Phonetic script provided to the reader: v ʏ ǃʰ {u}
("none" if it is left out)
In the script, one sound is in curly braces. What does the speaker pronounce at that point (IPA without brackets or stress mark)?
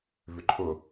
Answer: ʊ